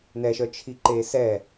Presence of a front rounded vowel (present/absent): present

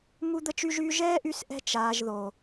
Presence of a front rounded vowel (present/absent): present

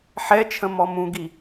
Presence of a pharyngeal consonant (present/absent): present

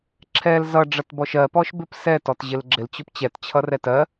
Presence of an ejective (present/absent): absent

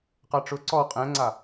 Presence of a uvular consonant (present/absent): present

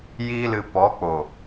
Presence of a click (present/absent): absent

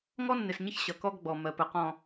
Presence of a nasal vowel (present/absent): present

